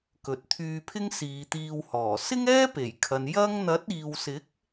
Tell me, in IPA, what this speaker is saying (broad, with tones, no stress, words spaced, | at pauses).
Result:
kɵ˨˥t̚t̪ʰyː˧pʰɪ˥ŋ siː˨˧t̪iː˧whɔː˨˩ sɪ˥ŋɛː˥pe˨˩jkʰɐ˨n jɐ˥ŋ n̪ɐ˨˥t̚iː˨wsɪ˨˥k̚